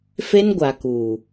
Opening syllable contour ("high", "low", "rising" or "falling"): high